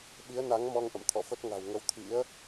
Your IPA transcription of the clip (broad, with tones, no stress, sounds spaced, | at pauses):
ɓ i˨˦ ə̯ n a˨˦ ŋ m ɔ˧ ŋ ʔ ə̰˧˨ m t̪ʰ ɔ̰˧˨ f ə˦˥ t̚ ŋ a̤˨˩ w ŋ ə˧ w t̪ʰ ḭ˧˥ ə̯